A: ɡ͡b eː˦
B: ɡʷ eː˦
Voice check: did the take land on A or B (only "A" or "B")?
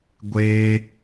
B